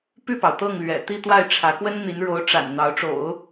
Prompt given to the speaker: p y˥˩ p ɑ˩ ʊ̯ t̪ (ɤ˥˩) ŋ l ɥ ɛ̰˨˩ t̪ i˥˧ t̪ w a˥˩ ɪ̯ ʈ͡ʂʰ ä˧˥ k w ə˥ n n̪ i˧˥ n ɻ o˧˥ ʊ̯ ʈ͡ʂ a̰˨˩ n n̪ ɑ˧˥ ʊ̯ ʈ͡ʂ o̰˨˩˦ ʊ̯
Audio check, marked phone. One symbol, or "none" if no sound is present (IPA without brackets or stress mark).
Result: ɤ˥˩